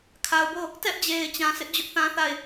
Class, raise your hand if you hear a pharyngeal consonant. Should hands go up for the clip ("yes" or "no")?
no